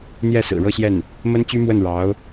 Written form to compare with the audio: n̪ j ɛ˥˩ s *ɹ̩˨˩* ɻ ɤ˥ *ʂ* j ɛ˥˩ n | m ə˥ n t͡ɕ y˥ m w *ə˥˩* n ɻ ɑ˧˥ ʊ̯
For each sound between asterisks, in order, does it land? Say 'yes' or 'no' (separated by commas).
yes, no, yes